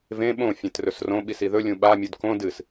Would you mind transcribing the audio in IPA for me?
v ẽ ɓ õ fʲ ẽ t r ɵ s r õ ɓ i s i ð ɵ lʲ ũ ɓ a mʲ u d k õ d ɨ s

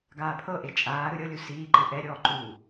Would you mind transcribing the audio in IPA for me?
ɡ aː pʰ ɤ ʔ e t͡ʃʼ aː ɾ ɯ ɾʲ ɤ lʲ u s iː ǃ ɯ ʔ ɛ ɾʲ ɔː ǃ u

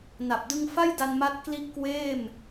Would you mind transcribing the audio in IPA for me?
n a˨˩ p̚ d ɯ˧ ŋ f a˥˩ j d a˧ n m a˦˥ t̚ k l i˦˥ ʔ k w eː˥˩ m

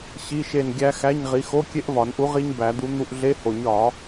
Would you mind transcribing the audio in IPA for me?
ɕ i˧˥˧ ʃ e˦˨ n ɡʲ æ˦˥ x æ˧˥˧ ɲ ʁ i˨˥ x o˧˥˧ kʲ e˦˥ ʔ v ɒ˨˩˦ n ʔ u˨˥ ʁ i˦˥ ɲ b æ˨˩˦ d̪ u˨˥ n̪ u˦˨ ʔ ɮ e˧˥˧ h o˨˩˦ ɲ ɒ˨˩˦

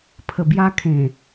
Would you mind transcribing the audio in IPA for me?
pʰ ə˨˩ b j a˧ kʰ ẽ˨˩

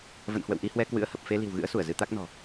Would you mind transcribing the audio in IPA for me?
v ə̰˧˨ n h w ə̰˧˨ w ʔ i˧ h w ɛ˧ k w ɨ̰˧˥ ə̯ h ə˨˩ p̚ f e˧ l i̤˨˩ w ɣ ɨ̰˧˥ ə̯ s u˧˩ ə̯ z ɨ˧ t̪ a˦˥ k̚ n ɔ̤˨˩

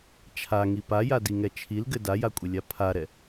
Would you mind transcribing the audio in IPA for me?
t͡ʃʰ a ŋ i p a j a d i ŋ ɛ t͡ʃʰ i l ɡ ɘ d a j a kʷʼ ɘ lʲ a pʰ a ɾ ɛ

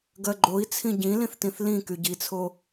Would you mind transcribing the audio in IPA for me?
ɡ ɜ ɡ͡ǃ o i̯ t͡sʰ ĩ ɟ ĩ l ĩ θ t ĩ θ l ĩ k y ɟ i t͡sʰ o

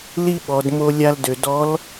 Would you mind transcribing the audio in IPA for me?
l i˥ ɓ ɔ˩˧ d m o˧ lʲ a˧ l d ø˩ d ɔ˧˥ l

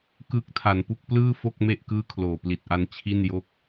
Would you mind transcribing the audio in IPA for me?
k ɯː˦˥ k̚ tʰ a˩˦ n p u˦˥ k̚ p l ɯː˥˩ f o˥˩ k̚ m e˥˩ ʔ k ɯː˥˩ kʰ l oː˨˩ p l i˨˩ t̚ ʔ a˧ n t͡ɕʰ i˥˩ n j o˥˩ k̚

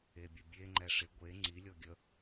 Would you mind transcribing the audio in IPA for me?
e bʲ ə bʲ e ŋ͡ǃ ɛ ʂ ɪ ɡʷ e ŋ͡ǀ i lʲ ɔ ɡʲ ə

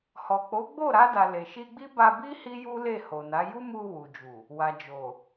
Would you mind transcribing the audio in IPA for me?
h ɔ˨ k͡p o˨˦ ɡ͡b o˦˨ ɾ a˧ d a˨ l e˨ ʃ i˧ ɡ͡b i˦ b a˧ b i˦ h i˦ j u˦ l e˦˨ h o˨ n a˨˦ j u˦ m u˧ w u˨ d͡ʒ u˨ | w a˨ d͡ʒ o˨

